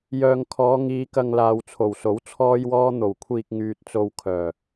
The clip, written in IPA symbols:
j œː˨ ŋ kʰ ɔː˨˧ ŋ iː˨˧ k ɐ˨ ŋ l aː˨ w t͡sʰ o˨˩ w s o˨˥ w t͡sʰ ɔː˧ j w ɔː˧ n̪ o˨˩ w kʷʰ iː˨ k̚ ŋ yː˨ t̚ t͡s o˨ w kʰ œː˨˩

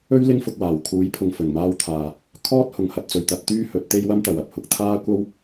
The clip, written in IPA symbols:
ɵ˥ ɥ l ɪ˥ ŋ f ʊ˧ k̚ w aː˨˩ w kʰ uː˨˥ j pʰ ʊ˨ ŋ f ɵ˨˩ n m aː˧ w t̪ʰ aː˨ | kʰ ɔː˥ t̚ h ʊ˨ ŋ h ɐ˧ t̚ t͡s ɵ˨ ɥ t̪ ɐ˧ t̚ t̪ yː˥ h ɵ˨˥ t̚ t̪ e˥ j w ɐ˥ m t̪ ɐ˨ w ɐ˨˥ p̚ h ʊ˨˥ k̚ t̪ʰ aː˥ kʷ ɐ˥ w

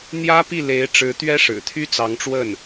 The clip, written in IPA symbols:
n̪ j ä˥ p i˥˩ l e˧˥ ɪ̯ ʈ͡ʂ ɻ̩˧˥ t̪ ɥ ɛ˥ ʂ ɻ̩˨˩ t̪ʰ y˥ t͡s ɑ˧˥ ŋ ʈ͡ʂ w ə˥˩ n

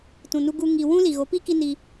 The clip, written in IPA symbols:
t ũ˨ n u˧ ɡ u˦ ŋ i˧ w ũ˦ l i˨ ɣ o˨˦ p i˦ k i˦ n i˧

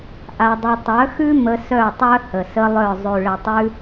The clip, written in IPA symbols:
ʔ a˧ dˤ ɘ˧ tˤ œ˨˦ x ʉ˦ m ə˧ s œ˦˨ tˤ œ˦ h ə˨ s ə˦ lˠ œ˦˨ zˤ ʉ˨ ɭ ɘ˨ tˤ ʉ˧

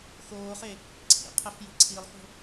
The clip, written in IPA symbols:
x oː χ e | ǀʰ ḭ qʰ ɛ f j i̤ ǀʰ i lˠ x o̤

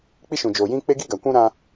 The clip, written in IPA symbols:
k͡p i˦ ʃ ũ˨ d͡ʒ oː˨ j ĩ˦ k͡p e˦ ɡ i˦ ɡ a˨ kʷ ũ˦ ɾ ã˦

